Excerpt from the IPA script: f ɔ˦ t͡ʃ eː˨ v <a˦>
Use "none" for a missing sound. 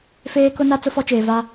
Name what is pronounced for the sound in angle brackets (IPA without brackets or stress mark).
a˦